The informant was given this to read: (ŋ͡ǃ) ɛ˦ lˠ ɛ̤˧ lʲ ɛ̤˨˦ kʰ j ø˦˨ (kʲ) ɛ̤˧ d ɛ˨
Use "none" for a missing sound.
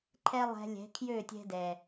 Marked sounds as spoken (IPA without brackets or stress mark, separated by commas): ǃʰ, tʲ